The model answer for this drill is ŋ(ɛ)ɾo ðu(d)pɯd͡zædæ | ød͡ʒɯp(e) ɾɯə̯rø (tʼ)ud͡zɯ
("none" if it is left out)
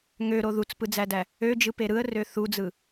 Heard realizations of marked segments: ø, t͡s, e, θ

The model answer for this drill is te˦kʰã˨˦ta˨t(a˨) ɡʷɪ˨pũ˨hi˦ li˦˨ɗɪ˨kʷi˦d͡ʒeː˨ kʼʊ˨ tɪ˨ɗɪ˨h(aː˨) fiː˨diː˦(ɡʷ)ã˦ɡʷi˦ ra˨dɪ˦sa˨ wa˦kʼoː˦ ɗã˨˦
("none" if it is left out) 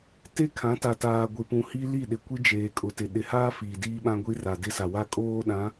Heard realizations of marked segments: aː˨, aː˦, ɓ

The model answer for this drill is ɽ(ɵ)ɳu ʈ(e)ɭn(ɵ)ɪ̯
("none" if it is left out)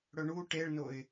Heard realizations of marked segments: ɵ, e, o

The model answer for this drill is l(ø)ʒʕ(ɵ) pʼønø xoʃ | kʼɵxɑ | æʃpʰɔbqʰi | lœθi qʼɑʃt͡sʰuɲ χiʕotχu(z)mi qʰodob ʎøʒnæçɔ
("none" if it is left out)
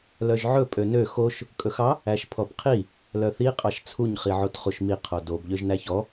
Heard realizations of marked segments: œ, ɵ, ʃ

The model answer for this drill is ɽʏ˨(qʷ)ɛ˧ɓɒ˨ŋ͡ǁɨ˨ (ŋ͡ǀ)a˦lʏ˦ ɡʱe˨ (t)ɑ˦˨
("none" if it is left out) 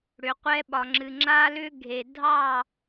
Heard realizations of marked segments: qʷ, ŋ͡ǁ, dʱ

